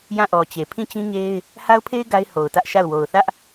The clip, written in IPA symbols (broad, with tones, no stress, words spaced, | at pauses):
jã˦˨ʔɔ˨t͡ɕe˨ pʰĩ˦˨t͡ɕĩ˦ɲe˦ɪ̯ | ha˦ʊ̯pʰe˦ɪ̯ ɡa˦ɪ̯ho˨ʊ̯tä˦ʔʃa˦˨ʊ̯ wo˨ʊ̯θä˦ʔ